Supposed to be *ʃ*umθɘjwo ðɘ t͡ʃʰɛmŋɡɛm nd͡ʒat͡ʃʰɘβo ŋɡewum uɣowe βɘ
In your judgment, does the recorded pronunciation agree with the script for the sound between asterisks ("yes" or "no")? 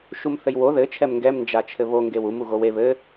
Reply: yes